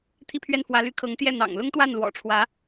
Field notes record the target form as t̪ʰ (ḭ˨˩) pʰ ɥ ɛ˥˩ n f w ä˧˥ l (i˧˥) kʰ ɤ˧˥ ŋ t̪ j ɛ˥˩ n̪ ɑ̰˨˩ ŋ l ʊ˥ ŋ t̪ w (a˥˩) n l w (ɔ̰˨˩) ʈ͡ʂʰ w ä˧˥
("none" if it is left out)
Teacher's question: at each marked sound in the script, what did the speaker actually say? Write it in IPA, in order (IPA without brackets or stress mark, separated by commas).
i˥˧, y˧˥, a˥˩, ɔ̰˨˩